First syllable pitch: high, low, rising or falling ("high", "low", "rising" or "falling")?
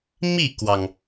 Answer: falling